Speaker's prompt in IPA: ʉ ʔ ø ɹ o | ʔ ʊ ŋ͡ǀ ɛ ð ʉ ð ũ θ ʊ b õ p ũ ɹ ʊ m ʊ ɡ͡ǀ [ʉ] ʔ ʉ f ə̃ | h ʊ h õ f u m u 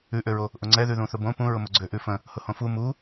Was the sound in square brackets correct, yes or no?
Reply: no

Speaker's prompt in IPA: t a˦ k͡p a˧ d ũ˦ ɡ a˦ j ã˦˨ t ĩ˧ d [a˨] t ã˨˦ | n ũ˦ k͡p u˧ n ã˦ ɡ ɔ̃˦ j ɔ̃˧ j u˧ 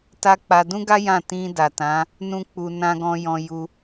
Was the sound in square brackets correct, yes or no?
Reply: yes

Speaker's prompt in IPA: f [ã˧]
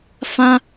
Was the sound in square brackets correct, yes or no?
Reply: yes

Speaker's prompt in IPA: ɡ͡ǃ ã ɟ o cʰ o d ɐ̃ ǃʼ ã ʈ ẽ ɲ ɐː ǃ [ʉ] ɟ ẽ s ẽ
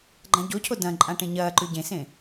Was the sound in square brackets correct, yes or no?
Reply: yes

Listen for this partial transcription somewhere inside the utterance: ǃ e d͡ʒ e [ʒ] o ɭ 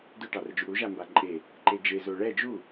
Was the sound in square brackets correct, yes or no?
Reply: no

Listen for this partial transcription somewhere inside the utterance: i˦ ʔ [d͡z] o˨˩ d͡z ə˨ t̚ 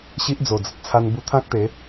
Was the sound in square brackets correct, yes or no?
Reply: yes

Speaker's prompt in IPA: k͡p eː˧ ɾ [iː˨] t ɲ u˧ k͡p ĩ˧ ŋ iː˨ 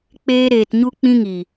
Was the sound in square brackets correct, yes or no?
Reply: no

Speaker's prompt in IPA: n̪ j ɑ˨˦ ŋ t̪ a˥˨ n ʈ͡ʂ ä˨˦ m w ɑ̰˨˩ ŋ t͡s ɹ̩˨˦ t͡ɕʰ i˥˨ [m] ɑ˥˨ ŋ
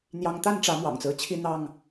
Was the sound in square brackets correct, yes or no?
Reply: no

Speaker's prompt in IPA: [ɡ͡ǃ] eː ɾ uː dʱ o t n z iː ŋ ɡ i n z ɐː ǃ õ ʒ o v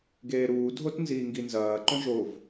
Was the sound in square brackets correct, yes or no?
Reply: no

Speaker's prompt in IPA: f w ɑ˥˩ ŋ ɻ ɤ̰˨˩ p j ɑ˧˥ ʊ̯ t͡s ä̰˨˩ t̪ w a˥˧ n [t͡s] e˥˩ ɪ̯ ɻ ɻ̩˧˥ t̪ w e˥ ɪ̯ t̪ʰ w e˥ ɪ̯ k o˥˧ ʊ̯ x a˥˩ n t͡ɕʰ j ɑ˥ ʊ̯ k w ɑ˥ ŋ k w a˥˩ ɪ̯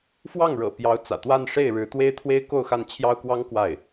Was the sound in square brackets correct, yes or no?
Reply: no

